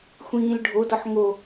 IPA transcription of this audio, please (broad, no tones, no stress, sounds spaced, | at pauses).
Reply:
xʷ ĩː l ɖʱ o d ɒ ħ ŋ o